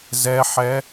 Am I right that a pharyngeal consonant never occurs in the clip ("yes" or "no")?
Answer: no